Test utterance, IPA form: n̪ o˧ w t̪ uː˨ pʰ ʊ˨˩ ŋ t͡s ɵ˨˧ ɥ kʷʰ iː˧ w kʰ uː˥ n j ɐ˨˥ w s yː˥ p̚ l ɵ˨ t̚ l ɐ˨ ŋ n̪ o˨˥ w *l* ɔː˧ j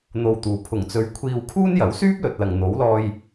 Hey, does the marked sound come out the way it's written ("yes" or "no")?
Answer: yes